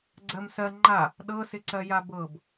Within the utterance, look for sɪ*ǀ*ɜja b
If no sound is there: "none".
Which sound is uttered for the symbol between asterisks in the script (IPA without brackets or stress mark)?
ǀ